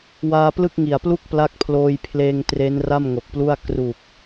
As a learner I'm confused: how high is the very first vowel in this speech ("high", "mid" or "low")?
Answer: low